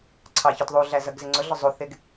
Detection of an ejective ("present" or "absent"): absent